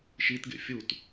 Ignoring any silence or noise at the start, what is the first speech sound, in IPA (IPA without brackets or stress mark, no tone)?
ʃ